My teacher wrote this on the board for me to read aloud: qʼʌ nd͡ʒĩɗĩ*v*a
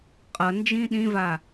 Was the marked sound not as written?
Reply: no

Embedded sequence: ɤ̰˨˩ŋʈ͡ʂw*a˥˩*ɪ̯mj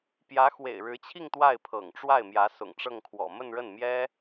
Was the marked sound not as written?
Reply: no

